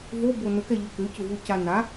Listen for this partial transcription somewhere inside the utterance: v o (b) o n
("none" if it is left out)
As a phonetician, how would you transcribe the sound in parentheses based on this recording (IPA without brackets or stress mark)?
b